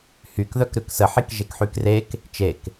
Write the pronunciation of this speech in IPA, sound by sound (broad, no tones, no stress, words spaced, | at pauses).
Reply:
hyk ðœkɾʉksəħik ʒekħykrek | t͡ʃek